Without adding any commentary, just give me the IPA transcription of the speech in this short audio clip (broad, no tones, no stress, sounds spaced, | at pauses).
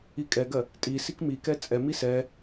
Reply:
i kʼ ɛ ɡ ɜ | tʼ i s i k m i k ɛ t͡sʼ ɛ m i s ɛ